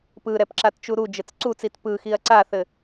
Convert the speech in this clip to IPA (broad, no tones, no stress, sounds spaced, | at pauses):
p ɯ ɾ ɛ p ǁ a t t͡ʃ u ɾ u d͡ʒ ɘ t͡s ǀ u t͡s i t p ɯ x i ɐ̯ ǀ a θ ɘ